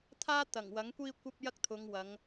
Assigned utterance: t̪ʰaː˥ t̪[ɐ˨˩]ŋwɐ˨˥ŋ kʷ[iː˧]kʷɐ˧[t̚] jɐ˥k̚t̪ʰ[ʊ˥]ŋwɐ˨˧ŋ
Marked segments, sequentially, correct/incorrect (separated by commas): correct, correct, incorrect, incorrect